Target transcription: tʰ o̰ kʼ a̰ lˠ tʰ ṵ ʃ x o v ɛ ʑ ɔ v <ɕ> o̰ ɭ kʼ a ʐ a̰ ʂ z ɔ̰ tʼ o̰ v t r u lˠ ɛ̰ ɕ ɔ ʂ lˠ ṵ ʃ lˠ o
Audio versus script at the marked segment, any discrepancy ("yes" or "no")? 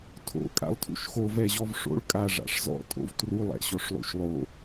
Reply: yes